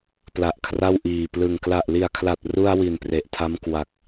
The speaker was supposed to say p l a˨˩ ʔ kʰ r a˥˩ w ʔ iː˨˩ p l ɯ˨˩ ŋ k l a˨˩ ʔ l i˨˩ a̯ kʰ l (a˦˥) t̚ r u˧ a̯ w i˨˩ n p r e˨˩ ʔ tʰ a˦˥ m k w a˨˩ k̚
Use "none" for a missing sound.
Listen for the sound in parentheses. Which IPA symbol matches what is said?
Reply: a˨˩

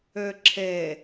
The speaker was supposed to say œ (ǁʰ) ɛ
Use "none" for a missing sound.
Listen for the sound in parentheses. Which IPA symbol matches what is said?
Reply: ǁʰ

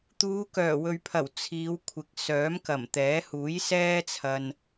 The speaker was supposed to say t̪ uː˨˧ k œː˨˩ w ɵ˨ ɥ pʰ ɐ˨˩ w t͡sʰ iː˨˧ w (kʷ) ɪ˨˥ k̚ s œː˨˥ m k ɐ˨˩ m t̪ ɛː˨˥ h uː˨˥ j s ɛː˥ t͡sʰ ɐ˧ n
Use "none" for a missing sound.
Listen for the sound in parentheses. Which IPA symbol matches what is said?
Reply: kʷʰ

